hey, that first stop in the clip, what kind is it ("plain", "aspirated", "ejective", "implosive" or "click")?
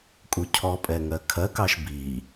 ejective